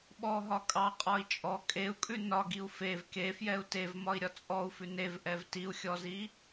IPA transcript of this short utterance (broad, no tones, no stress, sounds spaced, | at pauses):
ɓ ɔ ɦ ɒ kʼ ɑ qʼ ɒ i̯ t͡ʃʼ ɔ kʼ e u̯ kʼ ʉ n ɒ ɡ i u̯ f e v k e f j ɛ u̯ t e v m ɒ i̯ ɾʲ ɒ t͡sʼ ɔ u̯ f ʉ n e v ʔ ɛ v t i u̯ xʲ ɔ z i